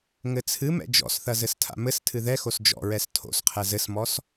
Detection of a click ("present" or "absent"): absent